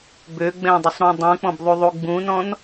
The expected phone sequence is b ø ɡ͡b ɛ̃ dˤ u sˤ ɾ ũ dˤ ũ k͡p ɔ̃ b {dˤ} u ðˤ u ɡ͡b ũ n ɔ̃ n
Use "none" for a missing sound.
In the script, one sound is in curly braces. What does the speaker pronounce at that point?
ðˤ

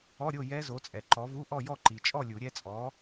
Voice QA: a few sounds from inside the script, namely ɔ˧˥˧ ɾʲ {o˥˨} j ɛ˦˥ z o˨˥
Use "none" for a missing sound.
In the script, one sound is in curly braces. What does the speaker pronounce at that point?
o˥˨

